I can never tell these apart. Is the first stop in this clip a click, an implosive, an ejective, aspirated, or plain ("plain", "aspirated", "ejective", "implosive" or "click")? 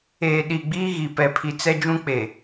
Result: implosive